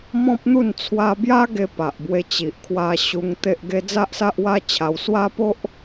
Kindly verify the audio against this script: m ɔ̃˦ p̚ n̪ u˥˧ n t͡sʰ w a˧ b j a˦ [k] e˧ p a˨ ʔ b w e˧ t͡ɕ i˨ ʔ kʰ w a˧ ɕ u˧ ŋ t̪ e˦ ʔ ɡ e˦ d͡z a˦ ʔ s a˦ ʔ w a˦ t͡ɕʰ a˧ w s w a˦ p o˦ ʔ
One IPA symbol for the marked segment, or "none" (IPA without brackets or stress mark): ɡ